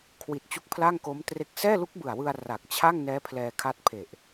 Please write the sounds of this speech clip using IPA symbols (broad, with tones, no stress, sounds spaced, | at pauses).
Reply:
kʰ w i˨˩ t̚ t͡ɕ u˦˥ k̚ pʰ l a˥˩ ŋ k o˦˥ m t r e˦˥ k̚ s ɛː˥˩ l u˦˥ k̚ b ɯ˨˩ a̯ w ɯ˧ a̯ r a˨˩ k̚ t͡ɕʰ a˥˩ ŋ n ɛː˦˥ pʰ l ɛː˧ kʰ a˦˥ t̚ pʰ e˨˩ ʔ